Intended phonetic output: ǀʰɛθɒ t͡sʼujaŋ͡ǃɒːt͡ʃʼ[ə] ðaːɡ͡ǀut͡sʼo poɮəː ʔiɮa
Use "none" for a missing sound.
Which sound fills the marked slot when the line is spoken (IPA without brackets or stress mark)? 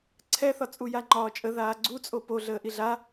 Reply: ə